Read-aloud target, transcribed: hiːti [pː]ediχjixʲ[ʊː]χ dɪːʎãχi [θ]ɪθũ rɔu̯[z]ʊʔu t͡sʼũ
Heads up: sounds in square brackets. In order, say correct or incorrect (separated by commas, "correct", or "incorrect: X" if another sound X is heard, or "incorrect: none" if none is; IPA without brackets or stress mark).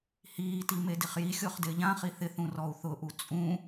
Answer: incorrect: m, correct, correct, incorrect: θ